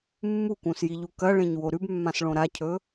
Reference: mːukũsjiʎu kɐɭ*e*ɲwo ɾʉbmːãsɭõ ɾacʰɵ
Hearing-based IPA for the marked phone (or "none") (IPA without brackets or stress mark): ẽ